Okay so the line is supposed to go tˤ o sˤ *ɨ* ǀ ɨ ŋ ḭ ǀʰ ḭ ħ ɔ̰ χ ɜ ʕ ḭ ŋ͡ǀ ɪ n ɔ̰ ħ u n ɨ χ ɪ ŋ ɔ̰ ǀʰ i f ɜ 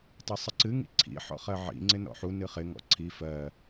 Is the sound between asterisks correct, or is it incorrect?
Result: correct